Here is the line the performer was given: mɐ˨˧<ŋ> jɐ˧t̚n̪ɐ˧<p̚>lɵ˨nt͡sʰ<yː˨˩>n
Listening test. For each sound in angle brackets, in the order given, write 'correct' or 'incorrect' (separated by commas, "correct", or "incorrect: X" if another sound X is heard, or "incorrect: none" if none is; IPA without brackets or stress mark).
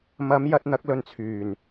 incorrect: m, incorrect: k̚, correct